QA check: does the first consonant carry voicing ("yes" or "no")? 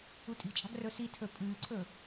no